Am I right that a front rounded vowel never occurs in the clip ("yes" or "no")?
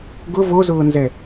yes